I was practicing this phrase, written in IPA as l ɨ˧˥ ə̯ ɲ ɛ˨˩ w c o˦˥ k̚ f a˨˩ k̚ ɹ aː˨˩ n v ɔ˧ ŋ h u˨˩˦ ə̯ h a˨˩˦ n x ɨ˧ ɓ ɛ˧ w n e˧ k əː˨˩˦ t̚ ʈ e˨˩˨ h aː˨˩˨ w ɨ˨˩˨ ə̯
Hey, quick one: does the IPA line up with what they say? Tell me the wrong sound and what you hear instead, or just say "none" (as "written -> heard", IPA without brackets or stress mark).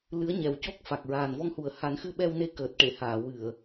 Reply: əː˨˩˦ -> əː˨˩